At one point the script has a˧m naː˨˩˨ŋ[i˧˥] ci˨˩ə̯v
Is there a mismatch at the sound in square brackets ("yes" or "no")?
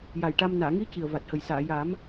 no